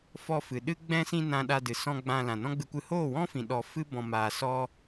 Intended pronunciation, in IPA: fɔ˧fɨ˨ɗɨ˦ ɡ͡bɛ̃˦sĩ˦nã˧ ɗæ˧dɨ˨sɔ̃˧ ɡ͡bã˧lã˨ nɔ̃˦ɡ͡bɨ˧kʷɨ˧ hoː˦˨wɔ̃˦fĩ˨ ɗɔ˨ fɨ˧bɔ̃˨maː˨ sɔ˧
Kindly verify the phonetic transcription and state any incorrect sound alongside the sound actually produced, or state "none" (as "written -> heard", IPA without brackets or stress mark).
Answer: æ˧ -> a˧